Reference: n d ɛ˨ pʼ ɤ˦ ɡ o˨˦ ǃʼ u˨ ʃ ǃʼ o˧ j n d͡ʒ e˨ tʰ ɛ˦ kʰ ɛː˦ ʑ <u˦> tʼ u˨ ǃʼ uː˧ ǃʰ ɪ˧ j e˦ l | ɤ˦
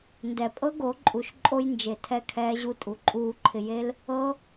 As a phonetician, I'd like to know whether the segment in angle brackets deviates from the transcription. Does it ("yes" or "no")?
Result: no